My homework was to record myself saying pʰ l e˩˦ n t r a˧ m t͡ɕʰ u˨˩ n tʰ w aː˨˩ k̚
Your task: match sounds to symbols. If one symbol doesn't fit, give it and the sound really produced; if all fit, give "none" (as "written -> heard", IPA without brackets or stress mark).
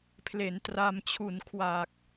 tʰ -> kʰ